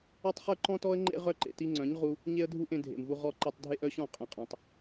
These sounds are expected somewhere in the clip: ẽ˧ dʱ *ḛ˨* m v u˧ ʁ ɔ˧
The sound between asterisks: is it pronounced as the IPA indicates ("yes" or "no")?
yes